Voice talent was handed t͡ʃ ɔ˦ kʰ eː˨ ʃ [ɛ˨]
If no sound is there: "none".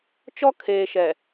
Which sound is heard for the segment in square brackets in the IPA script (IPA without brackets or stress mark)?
ɛ˨